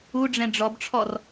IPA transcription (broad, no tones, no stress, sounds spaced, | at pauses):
u ɖ͡ʐ ɛ̃ ɖ͡ʐ ɔ b ʈ͡ʂʰ ɔ r